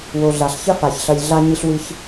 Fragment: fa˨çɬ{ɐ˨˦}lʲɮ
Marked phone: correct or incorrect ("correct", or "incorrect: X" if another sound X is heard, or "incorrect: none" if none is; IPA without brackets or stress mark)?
incorrect: ɐ˧